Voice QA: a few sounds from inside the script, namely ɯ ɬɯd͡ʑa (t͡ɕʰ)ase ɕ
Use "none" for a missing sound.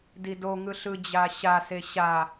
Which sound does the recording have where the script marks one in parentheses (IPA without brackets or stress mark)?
ɕ